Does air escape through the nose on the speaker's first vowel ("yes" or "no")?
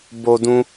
no